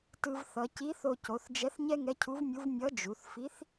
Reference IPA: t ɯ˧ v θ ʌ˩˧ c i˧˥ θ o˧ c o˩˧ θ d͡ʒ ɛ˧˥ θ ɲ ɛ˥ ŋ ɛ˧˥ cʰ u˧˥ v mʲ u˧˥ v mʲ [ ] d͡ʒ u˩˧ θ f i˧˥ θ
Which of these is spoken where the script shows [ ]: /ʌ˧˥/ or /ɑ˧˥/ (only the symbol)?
ʌ˧˥